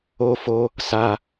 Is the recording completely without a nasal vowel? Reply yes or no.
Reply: yes